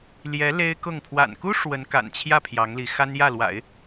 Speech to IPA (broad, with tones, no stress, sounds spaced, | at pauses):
l j ɛ˧˥ l e˥ ɪ̯ k ʊ˥˩ ŋ pʰ w a̰˨˩ n k u˥ ʂ w ə˧˥ n k a̰˨˩ n t͡ɕʰ j ä˥˩ pʰ j ɑ˧˥ ŋ l i˧˥ x a˥ n j ä˥˩ l w a̰˨˩˦ ɪ̯